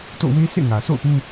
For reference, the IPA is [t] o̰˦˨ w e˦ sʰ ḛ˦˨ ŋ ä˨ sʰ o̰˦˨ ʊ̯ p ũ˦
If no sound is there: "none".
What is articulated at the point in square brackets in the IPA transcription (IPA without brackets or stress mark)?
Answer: t